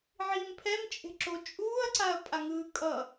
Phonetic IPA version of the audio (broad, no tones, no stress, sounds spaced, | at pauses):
ʕ iː m pʰ ɛ m t͡ʃʼ e̤ ǁ o t͡ʃʼ uː ɐ̯ ǀ a ɐ̯ pʼ a ŋ ɯː kʼ ʌ